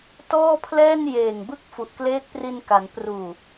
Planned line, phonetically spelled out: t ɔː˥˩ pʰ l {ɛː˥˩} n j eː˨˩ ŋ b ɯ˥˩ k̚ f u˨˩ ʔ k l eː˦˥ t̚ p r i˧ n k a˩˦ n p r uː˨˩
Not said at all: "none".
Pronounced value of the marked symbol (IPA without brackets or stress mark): ɛː˥˩